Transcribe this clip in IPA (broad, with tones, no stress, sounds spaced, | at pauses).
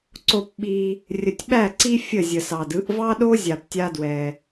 ǀ o˧ p ɓ i˧ | rʲ ə˨ tʲ ɓ æ˦˨ ǀ i˦ fʲ ə˦˨ zʲ ə˨ s ɑ˨ d ɯ˧ ʔ v ɑ˦ ɗ o˦ zʲ a˧ p tʲ a˦ d w ɛ˧